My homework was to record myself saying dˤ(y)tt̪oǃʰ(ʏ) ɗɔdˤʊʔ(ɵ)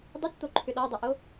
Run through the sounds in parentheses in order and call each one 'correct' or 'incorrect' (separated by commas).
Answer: correct, correct, incorrect